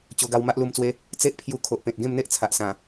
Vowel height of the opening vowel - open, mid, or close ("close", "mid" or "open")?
mid